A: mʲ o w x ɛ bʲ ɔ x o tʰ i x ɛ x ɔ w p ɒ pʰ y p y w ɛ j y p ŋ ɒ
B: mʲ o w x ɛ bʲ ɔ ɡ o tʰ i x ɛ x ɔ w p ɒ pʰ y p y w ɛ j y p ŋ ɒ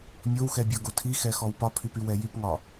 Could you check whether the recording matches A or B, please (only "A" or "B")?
B